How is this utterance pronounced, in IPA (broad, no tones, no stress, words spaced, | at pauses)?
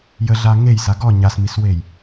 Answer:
jəɮa ŋejsa ɡɔ ɲasmiswej